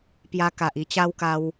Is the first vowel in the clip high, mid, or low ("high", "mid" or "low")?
low